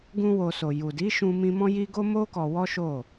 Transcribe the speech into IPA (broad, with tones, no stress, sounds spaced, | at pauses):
ɡ ũ˦ w o˧ s o˨ j u˨ d i˨˦ ʃ ũ˧ m ĩ˧ m ɔ̃˦ j i˦ ɡ o˦ m o˦ k ɔ˧ w ɔ˦ ʃ o˦˨